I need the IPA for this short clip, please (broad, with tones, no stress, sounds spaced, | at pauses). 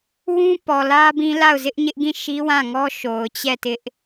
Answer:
w ũ˦ p ɔ˨ l ä˦ b ĩ˦ l a˦˨ ʊ̯ z ɪ˦ ʔ ɲ ɪ˦ ʔ ɡ ĩ˦˨ ʃ i˦ w ã˦˨ ŋ ɔ˦ ʃ o˨ ʊ̯ t͡ɕ ɛ˦˨ t ɪ˦ ʔ